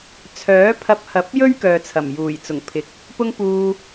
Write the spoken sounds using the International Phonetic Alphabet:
t͡sʰ œː˨˥ pʰ ɐ˧ p̚ h ɐ˨˥ p̚ j ɵ˥ ɥ k œː˨ t͡sʰ ɐ˨˩ m j uː˨˩ j t͡s ʊ˨˩ ŋ pʰ ɪ˨˥ k̚ | p ʊ˥ ŋ p uː˧

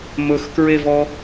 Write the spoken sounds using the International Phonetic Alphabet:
m ɵ x k ɹ e v ɔ

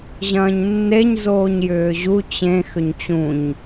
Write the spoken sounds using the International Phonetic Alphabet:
ʑ ɐ̃ː ɲ nː e ɲ z oː ɲ j ʏː ʑ u t͡ɕ ẽ x ʏ ɲ t͡ɕ ũ ɲ

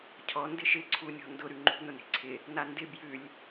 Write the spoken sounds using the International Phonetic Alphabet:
cʰ ɔ n d ɪ ʃ ɪ ǀʰ u nʲ ɔ̤ n d ʊ ɾ ʉ ŋ͡ǃ ṳ n ʊ n e̤ ǀʰ ɪ | n a n d ɪ b j ʉ lʲ

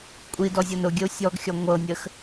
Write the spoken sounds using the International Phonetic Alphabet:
kʷʼ i d ɔ zʲ ɤ n ʊ ɡʲ ə u̯ sʲ ɔ ɡ xʲ ɔ ŋʷ ɤ nʲ ə x

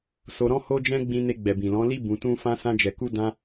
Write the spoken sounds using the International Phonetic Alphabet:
s o˧ ɾ ɔ̃˦ h o˦ d͡ʒ ɛ̃˦ ɡ͡b ĩ˧ n e˧ ɡ͡b ɛ˨ b ĩ˨ l ɔ̃˨˦ l i˦ b ũ˧ t ũ˦ f ã˦ s ã˦ d͡ʒ ɛ˧ k u˦ d ã˦

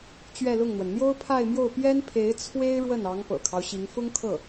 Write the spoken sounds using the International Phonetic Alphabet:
t͡ɕ ɥ ɛ˥˧ l ʊ˥˩ ŋ n̪ w ə˩ n n̪ j o˥ ʊ̯ pʰ a˥˧ ɪ̯ m j o˥˩ ʊ̯ p j ɛ˥ n pʰ e˧˥ ɪ̯ t͡sʰ w e˥ ɪ̯ ɻ w ə˥˩ n ɑ˧˥ ŋ p ɤ̰˨˩ kʰ ɑ˦ ʊ̯ ɕ i˧˥ ŋ f ʊ˥ ŋ kʰ ɤ˥˩

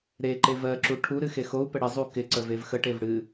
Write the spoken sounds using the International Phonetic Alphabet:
ɾ e ǃ e v ɜ ǁ u ʈʰ u ɾ ɨ x e x o u̯ p ə ɽ ɪ zˤ u k ɪ ǀ ə v e v x ə ʈ e v ɽ ɨ

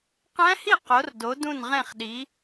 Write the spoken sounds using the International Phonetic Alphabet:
q æ̃˦˥ h i˥˩ q o˩˥ r d o˩˥ d ũ˥˩ n ʁ ẽ˥˩ χ ɗ i˩˥

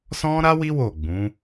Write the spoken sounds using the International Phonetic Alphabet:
s ɔ̃˦ ɾ a˦ w i˦ w o˦˨ ɡ͡b ũ˨˦

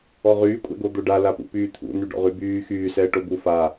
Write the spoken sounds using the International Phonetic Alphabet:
ɔ ʁ yː kʷʼ ɛ̰ ɡ o d̪ o ɖ a l a p ṵ p yː t̪ʰ ṵ n y ɖ ɔ̰ ʁ y b yː x yː s ɛː ʈ o b u f a

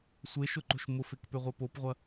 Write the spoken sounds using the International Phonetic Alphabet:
sʷ e ʃ ʊ ǃ o̤ ʃ m ʊ f e k p ø ʁʷ e p o p ʁʷ ɐ

